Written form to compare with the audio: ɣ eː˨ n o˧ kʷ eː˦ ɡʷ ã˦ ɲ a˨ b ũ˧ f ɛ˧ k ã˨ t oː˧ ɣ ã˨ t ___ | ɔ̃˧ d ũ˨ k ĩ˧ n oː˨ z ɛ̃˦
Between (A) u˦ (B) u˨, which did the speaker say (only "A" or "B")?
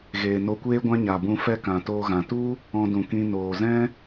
A